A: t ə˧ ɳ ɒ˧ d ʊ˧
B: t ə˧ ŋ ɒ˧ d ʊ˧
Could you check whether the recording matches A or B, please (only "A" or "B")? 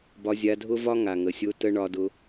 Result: A